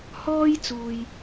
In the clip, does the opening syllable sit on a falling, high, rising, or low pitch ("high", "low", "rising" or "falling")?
high